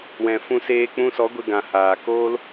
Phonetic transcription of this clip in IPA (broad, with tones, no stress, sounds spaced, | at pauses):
w ɛ̃˨ f ũ˧ s eː˧ k͡p ũ˧ s ɔ˨˦ ɡʷ e˧ ɡ ã˨ h aː˨ k oː˦ l